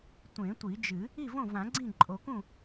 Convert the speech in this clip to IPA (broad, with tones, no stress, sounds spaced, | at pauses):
tʷ ẽ˨˩˦ tʷ i˨˩˦ d͡ʒ ɨ˨˩˦ | i˥˩ v õ˥˩ v ã˨˩˦ ɡ͡ǀ ĩ˥˩ ǃʼ o˨˩˦ k ũ˥˩